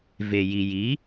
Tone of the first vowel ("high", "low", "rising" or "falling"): low